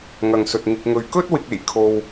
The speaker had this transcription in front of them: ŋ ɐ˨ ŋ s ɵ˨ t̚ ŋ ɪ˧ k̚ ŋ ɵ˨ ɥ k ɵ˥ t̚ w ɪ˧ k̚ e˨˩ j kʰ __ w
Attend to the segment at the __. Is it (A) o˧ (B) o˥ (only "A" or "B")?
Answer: A